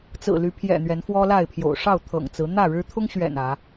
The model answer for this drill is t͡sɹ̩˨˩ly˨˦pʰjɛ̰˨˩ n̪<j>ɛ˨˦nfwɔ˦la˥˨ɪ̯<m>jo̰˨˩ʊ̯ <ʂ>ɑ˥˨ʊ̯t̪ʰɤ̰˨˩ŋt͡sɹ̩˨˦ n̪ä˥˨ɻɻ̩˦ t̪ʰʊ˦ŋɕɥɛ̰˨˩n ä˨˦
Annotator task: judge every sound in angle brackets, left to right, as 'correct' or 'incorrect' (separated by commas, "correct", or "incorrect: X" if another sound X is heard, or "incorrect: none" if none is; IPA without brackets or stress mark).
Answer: incorrect: ɥ, incorrect: pʰ, correct